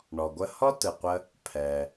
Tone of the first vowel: low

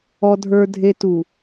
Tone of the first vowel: low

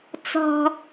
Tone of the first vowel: high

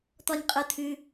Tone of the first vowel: low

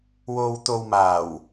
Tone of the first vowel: low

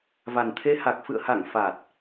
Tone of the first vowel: low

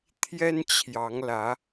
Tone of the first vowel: high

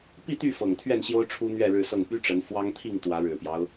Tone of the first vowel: falling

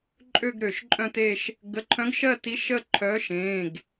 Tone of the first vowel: falling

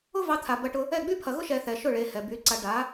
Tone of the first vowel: high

